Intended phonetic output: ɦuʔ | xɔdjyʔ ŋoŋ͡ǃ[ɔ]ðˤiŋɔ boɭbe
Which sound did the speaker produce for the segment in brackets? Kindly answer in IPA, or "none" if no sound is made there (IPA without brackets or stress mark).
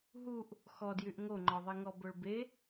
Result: ɔ